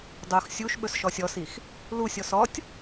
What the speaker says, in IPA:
dˤ o x sʲ u ʃ ɓ ɵ s ʃ ɔ sʲ ɔ s i x | l u sʲ ɔ s ɔ tʲ

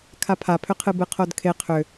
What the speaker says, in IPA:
kʰ a pʰ a pʰ ʏ qʰ ɨ b ɨ qʰ o d kʰ e qʰ ʏ

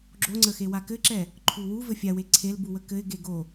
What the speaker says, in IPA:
ɡ͡ǁ o ŋ͡ǀ ə x e w a k ɘ ǁ ɛ | ǃʰ u w u v ɘ fʲ a w e ǀʰ e l b u w ə k ɘ ɪ̯ ɡ e ɡ o

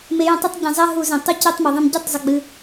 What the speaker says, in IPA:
m e˨˦ j ə̃˨˦ tˤ ə˧˥˧ tˤ ɟ ə̃˧˩˧ zˤ ɛ˧˥˧ ɦ u˧˩˧ z ẽ˩ tˤ u˦˨ c e˦˨ tˤ m ɛ˩ ðˤ ə̃˧˩˧ m ɟ ɘ˧˥˧ tˤ zˤ ɨ˩ ɡ͡b ɨ˩

